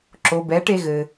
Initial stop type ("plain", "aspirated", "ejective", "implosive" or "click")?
click